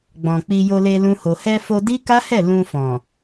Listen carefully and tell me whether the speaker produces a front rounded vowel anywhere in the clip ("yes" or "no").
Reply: no